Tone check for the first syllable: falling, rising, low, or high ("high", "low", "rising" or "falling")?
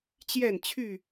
falling